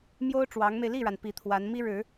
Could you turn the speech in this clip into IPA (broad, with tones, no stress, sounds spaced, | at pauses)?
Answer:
m j o˥ ʊ̯ ʈ͡ʂ w ɑ˧˥ ŋ m e˧ ɪ̯ l i˥˩ ɻ a˩ n p i˧˥ t̪ʰ w a˧˥ n m i˥ ɻ ɻ̩˨˩˦